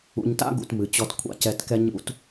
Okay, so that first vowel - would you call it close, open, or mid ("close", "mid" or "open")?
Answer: close